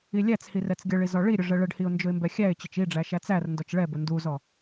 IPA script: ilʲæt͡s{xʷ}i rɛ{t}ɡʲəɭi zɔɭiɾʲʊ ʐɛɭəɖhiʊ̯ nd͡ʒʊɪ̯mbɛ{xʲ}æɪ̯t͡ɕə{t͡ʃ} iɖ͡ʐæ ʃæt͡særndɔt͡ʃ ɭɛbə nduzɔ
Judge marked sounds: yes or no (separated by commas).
no, no, yes, yes